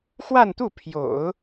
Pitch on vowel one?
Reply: falling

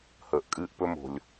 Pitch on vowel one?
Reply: low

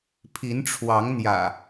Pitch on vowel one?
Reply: rising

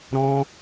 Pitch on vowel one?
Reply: high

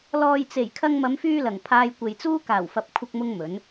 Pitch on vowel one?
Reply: low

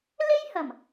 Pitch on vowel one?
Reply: high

